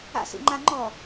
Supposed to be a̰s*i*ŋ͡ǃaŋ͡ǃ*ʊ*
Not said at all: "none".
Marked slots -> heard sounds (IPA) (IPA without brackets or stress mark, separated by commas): ḭ, ɔ